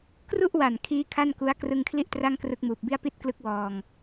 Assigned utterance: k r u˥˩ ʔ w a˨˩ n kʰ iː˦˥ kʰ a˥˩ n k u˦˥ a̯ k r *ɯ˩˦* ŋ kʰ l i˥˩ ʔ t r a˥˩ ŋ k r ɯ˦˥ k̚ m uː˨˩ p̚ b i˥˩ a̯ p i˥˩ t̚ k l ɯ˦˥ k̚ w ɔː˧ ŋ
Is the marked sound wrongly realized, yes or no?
yes